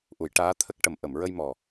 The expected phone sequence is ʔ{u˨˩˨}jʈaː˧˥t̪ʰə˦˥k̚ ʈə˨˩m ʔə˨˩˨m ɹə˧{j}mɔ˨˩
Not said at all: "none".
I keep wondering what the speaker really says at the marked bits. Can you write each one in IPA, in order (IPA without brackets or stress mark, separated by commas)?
u˨˩˨, j